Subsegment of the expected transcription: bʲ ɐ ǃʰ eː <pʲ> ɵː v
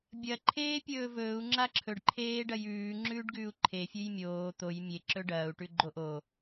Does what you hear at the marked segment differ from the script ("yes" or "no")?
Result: no